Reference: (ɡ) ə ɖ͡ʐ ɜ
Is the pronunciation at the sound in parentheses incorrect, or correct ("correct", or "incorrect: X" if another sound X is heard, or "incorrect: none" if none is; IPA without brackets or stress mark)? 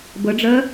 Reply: incorrect: b